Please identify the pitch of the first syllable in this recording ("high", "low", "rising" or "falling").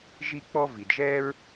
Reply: high